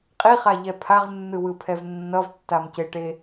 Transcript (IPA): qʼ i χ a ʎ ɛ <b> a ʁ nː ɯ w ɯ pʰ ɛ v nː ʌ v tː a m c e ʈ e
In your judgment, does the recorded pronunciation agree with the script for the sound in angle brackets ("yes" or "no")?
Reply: no